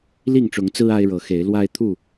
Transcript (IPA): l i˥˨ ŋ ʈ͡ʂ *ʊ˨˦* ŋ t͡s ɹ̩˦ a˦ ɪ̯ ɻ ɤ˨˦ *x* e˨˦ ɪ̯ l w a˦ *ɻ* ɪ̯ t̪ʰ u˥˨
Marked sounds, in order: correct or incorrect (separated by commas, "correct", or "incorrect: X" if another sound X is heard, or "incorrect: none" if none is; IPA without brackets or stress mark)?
correct, correct, incorrect: none